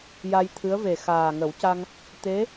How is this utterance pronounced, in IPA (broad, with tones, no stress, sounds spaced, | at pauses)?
j a˧ j t̪ʰ ɨ˧˥ ə̯ v e˨˩ x aː˨˩ ŋ ə˨˩˦ w c a˧ ŋ | t̪ e˧˥